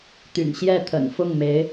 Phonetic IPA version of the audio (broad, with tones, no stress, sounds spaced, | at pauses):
t̪ y̰˨˩ n ɕ j ɛ˥˩ t̪ʰ ə̰˨˩ n f ʊ˥˩ ŋ m e˧˥ ɪ̯